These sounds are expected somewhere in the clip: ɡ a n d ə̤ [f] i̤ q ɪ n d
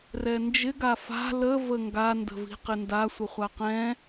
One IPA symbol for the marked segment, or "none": v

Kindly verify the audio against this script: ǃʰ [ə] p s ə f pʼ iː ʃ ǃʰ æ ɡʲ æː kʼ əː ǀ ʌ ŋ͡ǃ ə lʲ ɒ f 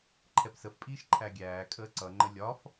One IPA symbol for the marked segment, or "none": ɛ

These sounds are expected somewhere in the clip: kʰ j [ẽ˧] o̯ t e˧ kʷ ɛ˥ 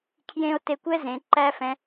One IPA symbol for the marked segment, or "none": ẽ˧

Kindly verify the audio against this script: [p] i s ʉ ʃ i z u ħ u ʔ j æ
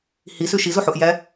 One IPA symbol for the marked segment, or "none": h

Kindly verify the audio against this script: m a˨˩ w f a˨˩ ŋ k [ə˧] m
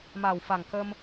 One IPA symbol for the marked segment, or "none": ə˧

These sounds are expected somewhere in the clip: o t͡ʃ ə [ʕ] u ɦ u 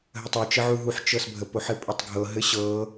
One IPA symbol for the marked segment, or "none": ʕ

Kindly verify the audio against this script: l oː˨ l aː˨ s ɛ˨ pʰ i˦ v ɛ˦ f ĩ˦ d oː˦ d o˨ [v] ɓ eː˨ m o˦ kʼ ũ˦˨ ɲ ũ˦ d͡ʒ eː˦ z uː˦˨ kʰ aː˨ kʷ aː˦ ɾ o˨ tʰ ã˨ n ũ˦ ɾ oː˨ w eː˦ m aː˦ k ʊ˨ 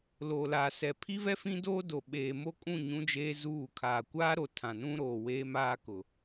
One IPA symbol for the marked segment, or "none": none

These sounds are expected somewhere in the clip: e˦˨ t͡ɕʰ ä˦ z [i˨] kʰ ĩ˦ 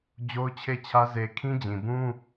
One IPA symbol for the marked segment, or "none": e˨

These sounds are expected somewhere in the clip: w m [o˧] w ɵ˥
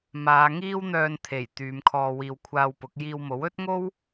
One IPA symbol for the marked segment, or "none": o˨˥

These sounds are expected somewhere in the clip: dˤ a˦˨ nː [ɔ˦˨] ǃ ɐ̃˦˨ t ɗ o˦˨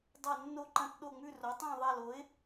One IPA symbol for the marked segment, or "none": o˦˨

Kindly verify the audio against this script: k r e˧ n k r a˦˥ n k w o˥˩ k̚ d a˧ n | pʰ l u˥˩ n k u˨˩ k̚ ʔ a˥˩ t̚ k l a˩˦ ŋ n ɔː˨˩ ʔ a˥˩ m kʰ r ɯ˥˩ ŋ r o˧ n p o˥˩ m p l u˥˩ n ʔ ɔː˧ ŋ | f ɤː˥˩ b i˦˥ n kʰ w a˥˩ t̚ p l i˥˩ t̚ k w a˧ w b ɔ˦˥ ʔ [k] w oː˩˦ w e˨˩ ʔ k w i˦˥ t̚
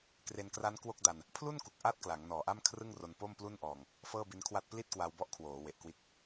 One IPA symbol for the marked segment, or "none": kʰ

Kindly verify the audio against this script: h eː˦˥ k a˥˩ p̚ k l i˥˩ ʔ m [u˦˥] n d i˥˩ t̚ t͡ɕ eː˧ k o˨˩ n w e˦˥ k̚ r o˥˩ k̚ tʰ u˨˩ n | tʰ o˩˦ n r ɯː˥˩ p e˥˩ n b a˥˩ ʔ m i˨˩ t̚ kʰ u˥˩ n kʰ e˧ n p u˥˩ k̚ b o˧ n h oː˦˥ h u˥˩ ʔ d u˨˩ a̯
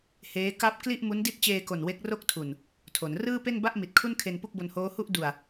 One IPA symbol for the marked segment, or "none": u˦˥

